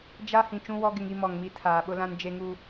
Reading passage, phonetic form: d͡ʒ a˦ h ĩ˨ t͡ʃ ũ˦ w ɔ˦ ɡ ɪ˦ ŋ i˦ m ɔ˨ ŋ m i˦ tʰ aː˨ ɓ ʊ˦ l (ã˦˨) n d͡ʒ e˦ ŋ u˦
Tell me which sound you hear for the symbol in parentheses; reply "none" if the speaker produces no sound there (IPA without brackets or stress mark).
ã˦